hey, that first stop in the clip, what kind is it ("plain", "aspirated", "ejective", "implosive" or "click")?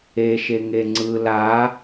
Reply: click